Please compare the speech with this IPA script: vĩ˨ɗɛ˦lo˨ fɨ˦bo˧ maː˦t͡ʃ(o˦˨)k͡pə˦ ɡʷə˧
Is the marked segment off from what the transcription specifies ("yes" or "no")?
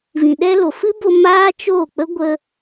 no